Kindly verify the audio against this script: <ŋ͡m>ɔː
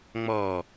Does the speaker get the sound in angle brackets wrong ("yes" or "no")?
no